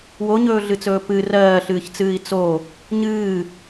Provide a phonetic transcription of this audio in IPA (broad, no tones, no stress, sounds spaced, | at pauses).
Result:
w o ɲ ɵː ɮ ɨ t͡s ɵː p ɨ r ɜː ɬ ɨː ç t͡s ɨː i̯ t͡s o | ɲ ɨː